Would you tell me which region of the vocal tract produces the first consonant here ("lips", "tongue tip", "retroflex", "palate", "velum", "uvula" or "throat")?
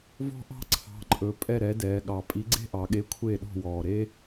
lips